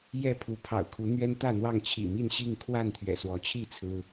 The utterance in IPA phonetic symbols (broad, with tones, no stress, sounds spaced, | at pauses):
j ɛ˥˨ pʰ u˨˦ pʰ ɑ̰˨˩ ʊ̯ kʰ u˨˦ n̪ ɥ ɛ˦ n t̪ ä˥˨ n̪ w ɑ˥˨ ŋ t͡ɕʰ ḭ˨˩ m i˥˨ n ɕ i˥˨ ŋ kʰ w a˥˨ n t̪ʰ ɥ ɛ̰˨˩ s w ɔ˨˦ t͡ɕʰ i˥˨ t͡sʰ ɹ̩˦